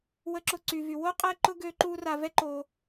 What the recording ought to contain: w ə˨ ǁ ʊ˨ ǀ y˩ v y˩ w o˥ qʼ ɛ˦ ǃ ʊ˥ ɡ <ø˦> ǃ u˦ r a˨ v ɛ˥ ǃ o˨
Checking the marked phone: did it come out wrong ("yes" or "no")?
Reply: no